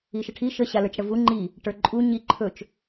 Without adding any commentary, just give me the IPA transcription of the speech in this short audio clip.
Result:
i ʃ ə ʈʰ i ʃ ə ɕ a l ə˞ t͡ʃ ɽ ə v u ŋ͡ǃ i | ʈ ə˞ ǃʼ u ɲ i ǃʰ ɵ t͡ʃ

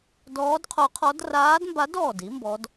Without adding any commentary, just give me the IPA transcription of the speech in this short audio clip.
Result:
d ɔː˧˥ d qʰ o˧˥ qʰ ɔ˧˥ d r aː˧˥ d m b a˧˥ d ɔː˧˩ d i˧˥ m b ɔ˧˥ d

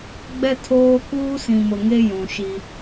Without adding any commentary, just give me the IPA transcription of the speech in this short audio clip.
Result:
ɡ͡b ɛ˦ tʰ oː˦ k uː˦ s ĩ˨ m ʊ˨ ŋ e˦ j ũ˨ ʃ i˦

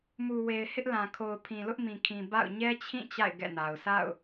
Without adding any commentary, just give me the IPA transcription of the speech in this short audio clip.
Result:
m u˨ w e˨ ɪ̯ h ɪ˦ ʔ l ã˨ kʰ o˨ ʊ̯ pʰ ĩ˨ l ʊ˦ ʔ m ĩ˨ kʰ ĩ˨ b a̰˦˨ ʊ̯ ɲ ɛ˦ t͡ɕʰ ĩ˦˨ t͡ɕ a̰˦˨ ɪ̯ ɡ ɛ̰˦˨ n a˨ ʊ̯ sʰ a̰˦˨ ʊ̯

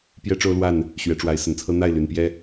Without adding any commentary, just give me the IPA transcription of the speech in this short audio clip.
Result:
p j ɛ˦ ʈ͡ʂ o˦ ʊ̯ l w a˥˨ n | ɕ ɥ ɛ˨˦ ʈ͡ʂ w a˨˦ ɪ̯ s ə˨˩ n t͡sʰ ɤ˦ n̪ a˥˨ ɪ̯ l y˨˩ n p j ɛ˦

